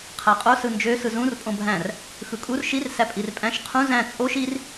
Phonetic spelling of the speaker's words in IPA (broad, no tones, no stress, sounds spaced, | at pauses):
qʰ æ qʼ o s ɯ n d͡ʒ ø s ɯ z ũ r pʼ õ bʱ æ̃ r | x ɯ kʼ u r ʃ i r s æ pʼ i r pʼ æ̃ ʃ qʰ ũ z æ̃ t͡sʼ o ʃ i r